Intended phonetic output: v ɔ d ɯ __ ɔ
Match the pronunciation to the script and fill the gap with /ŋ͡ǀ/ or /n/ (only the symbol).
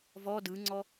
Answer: ŋ͡ǀ